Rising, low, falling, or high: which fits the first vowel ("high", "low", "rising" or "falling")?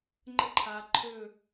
falling